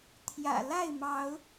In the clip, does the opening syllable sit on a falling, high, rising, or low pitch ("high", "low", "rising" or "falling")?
low